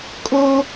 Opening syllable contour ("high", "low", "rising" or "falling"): high